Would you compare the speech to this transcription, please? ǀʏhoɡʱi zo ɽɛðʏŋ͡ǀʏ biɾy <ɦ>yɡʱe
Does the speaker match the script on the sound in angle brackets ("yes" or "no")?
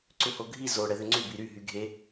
yes